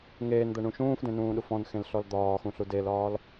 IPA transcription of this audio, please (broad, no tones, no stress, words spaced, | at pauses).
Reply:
ŋeːnd̪ɜɳũ ʃũːfdẽnũːɗuf ɔ̃nxẽlɬɔl d̪ɒːxũɬu delɒːl